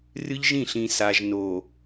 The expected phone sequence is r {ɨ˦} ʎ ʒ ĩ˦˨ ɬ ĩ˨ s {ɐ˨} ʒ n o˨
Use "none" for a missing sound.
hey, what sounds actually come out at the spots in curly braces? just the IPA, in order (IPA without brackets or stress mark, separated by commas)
ɨ˦, a˨